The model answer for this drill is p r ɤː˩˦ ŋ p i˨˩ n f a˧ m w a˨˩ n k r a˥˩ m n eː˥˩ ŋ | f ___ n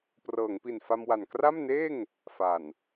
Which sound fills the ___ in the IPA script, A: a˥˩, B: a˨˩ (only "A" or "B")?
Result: B